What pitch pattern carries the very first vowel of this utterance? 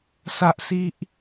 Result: high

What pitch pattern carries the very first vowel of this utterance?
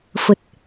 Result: low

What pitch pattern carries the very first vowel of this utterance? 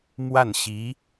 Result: falling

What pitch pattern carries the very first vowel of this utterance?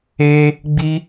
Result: high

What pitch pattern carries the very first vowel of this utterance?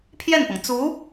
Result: falling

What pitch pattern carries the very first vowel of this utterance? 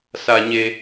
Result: low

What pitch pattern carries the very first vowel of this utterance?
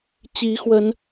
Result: rising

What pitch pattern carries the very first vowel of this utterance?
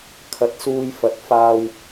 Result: low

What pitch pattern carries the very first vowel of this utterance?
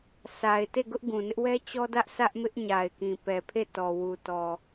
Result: low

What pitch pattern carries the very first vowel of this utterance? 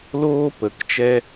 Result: high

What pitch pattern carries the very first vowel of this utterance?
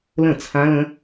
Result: falling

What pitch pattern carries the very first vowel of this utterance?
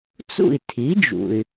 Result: falling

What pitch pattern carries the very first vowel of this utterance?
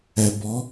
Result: low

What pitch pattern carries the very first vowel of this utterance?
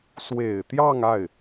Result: low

